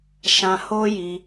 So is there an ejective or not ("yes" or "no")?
no